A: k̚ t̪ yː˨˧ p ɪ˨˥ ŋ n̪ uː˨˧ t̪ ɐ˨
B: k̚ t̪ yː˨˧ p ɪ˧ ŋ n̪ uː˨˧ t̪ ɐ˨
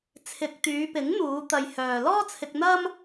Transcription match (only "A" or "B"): A